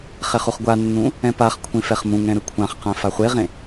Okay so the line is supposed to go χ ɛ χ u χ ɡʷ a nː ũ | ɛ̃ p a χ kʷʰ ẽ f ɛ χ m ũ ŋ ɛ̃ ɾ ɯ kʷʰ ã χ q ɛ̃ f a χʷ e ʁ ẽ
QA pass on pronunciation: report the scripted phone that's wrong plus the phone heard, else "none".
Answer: none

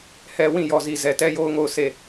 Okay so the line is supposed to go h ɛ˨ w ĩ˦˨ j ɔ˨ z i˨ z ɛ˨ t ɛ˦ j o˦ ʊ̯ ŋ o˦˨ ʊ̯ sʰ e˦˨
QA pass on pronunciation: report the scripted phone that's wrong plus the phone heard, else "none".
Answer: none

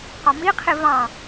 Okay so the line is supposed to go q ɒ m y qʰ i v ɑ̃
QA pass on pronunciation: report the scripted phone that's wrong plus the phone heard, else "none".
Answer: y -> i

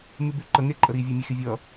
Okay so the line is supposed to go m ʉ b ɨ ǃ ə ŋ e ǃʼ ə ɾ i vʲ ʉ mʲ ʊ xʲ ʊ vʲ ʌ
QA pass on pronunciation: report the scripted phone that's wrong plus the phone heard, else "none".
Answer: ɨ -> ʉ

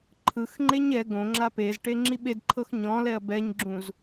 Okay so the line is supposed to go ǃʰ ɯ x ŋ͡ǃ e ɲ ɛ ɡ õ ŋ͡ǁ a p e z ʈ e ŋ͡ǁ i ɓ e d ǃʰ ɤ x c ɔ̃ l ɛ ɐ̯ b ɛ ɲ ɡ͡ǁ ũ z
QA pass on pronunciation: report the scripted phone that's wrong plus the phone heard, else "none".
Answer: c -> ɲ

